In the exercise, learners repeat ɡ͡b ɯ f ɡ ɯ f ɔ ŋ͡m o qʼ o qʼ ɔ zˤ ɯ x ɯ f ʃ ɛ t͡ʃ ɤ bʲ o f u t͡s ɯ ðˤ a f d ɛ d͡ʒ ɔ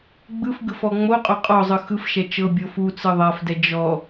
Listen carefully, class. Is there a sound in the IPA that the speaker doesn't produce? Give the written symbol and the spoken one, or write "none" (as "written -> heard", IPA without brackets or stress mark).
none